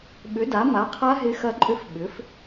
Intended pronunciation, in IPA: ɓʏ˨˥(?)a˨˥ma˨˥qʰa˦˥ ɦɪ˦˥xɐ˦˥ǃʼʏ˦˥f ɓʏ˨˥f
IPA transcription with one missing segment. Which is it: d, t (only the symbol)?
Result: d